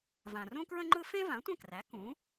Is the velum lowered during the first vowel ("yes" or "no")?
yes